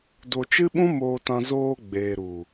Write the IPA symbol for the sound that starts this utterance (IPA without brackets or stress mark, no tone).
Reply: d